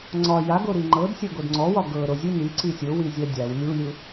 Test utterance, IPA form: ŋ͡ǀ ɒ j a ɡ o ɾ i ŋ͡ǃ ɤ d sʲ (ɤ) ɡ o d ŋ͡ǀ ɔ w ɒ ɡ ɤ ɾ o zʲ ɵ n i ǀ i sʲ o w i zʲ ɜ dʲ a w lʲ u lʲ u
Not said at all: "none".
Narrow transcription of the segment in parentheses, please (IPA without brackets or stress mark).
ɤ